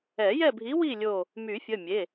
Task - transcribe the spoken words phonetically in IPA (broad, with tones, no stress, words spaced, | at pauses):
ɛ˨˩˦jɛ˦˨bʱi˨˥wi˦˨ lʲo˦˨ | my˨˩˦fʲə˩˧˩mʲe˩˧˩